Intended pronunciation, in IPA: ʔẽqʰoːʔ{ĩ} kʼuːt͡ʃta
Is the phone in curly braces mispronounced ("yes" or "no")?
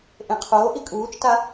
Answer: yes